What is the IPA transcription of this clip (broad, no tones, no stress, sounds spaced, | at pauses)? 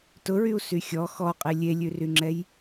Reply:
t ʊ ɹ y u̯ s y xʲ ɔ x ɔ qʼ e lʲ e lʲ ʉ r y ŋ͡ǁ ɛ j